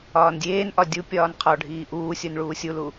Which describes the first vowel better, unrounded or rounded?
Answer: rounded